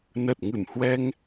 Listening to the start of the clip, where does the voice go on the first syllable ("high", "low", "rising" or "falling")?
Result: low